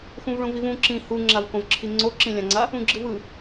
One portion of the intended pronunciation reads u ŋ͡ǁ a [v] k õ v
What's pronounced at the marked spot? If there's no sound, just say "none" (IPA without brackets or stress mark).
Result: v